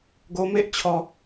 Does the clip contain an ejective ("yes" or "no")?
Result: no